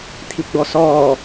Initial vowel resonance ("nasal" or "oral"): oral